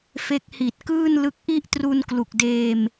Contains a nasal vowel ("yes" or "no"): no